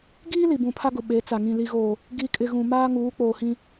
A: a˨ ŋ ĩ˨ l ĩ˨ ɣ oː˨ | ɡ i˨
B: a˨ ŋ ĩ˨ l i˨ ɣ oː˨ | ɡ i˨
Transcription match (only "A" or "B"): B